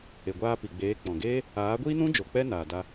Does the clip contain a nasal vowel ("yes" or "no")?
yes